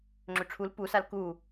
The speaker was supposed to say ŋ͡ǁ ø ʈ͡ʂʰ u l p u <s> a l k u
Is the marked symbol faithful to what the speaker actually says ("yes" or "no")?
yes